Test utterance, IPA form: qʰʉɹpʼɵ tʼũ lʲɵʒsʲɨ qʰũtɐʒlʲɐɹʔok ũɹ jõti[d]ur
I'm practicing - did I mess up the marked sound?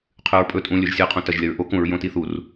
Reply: yes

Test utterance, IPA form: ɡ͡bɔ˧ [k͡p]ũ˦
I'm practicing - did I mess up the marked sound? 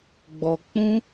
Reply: no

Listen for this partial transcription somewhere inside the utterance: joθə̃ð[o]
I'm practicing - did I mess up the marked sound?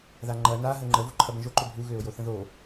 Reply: no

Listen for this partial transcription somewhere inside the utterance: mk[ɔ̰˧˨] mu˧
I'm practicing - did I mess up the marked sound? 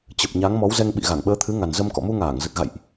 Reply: no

